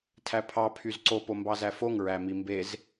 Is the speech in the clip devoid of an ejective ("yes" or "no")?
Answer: yes